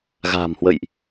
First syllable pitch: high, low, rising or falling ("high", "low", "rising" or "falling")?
low